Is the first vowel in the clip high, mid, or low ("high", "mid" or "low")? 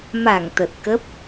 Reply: low